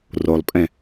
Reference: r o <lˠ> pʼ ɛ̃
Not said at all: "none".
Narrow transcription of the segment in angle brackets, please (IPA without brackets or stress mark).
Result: lˠ